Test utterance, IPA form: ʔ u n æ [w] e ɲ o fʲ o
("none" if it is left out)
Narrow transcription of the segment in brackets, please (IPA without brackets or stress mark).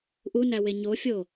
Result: w